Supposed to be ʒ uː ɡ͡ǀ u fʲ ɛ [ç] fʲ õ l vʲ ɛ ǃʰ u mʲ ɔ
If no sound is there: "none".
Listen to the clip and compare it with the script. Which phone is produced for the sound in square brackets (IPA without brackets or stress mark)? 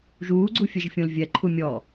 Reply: ʒ